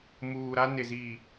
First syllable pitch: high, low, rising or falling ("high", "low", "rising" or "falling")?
low